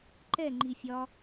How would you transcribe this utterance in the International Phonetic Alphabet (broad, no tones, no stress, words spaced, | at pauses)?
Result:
ǃɛŋ͡ǃi fʲɒ